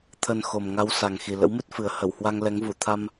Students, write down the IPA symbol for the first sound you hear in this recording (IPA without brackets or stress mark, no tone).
t̪ʰ